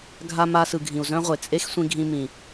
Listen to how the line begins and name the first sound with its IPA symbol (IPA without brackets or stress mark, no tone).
ɡʱ